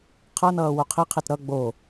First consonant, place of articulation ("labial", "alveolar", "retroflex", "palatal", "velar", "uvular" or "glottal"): uvular